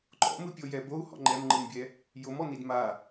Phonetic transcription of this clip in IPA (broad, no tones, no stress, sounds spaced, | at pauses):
ǃ ɔ̰ m ɯ pʲ o j ɛ b o u̯ h ɔ̰ ŋ͡ǃ ɛ m ŋ͡ǃ ɯ n bʲ ɛ | j o m ɔ n̪ i d m a